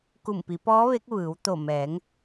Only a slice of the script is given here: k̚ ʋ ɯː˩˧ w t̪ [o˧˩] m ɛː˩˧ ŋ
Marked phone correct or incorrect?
correct